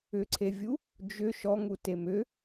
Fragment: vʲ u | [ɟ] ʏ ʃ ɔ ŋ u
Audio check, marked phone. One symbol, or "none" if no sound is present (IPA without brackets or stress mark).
d͡ʒ